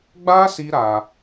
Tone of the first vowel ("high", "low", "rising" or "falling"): high